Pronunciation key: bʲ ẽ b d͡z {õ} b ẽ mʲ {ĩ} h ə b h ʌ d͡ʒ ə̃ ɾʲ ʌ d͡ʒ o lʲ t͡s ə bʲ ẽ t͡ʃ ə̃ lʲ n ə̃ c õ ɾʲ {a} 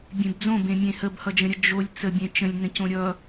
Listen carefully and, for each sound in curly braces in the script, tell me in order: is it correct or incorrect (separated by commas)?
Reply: correct, incorrect, incorrect